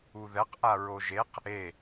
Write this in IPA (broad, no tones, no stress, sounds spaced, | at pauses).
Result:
u ð ɛ q ʔ a ɹ o ʒ e q | e